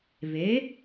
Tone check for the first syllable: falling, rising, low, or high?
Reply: rising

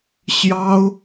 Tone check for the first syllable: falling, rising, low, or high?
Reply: high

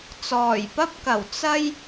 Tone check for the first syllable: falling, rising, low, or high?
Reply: low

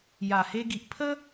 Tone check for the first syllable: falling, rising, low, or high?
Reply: low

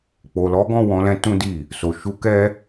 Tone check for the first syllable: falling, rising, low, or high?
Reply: low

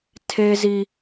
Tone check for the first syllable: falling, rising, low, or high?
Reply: high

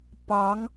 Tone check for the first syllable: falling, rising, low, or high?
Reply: rising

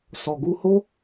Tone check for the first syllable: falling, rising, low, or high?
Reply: low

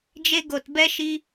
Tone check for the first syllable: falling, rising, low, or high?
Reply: high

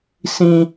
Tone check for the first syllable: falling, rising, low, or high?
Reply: high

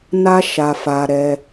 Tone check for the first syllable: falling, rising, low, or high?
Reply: high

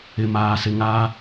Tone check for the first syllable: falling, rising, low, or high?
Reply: low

